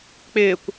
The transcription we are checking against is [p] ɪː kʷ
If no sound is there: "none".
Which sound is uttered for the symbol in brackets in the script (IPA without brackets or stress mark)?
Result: k͡p